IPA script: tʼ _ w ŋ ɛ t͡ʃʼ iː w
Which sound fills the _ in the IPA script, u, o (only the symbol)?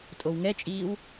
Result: o